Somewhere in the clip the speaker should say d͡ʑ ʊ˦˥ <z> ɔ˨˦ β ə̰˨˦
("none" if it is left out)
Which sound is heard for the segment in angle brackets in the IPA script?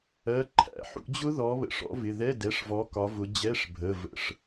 ð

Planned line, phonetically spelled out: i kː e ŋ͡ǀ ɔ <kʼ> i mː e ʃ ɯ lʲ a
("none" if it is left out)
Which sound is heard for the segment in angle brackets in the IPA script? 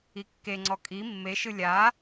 kʼ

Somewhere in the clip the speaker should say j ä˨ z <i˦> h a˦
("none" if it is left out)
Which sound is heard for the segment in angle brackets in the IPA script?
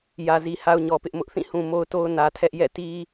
i˨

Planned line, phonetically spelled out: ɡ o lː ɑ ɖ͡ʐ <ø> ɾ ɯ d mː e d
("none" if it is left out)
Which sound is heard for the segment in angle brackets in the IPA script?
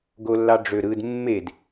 ø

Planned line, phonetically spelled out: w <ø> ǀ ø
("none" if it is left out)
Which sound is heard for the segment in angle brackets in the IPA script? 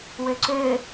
ø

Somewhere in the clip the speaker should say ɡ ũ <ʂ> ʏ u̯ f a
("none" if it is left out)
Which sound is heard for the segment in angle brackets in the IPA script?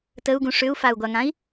ʂ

